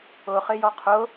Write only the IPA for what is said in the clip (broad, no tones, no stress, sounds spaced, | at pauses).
ʊ χ ɪ j ɔ qʰ ʊ